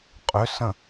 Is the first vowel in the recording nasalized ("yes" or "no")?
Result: no